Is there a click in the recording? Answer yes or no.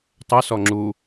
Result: yes